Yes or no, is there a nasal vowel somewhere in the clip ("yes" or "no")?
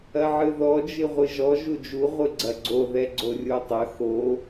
no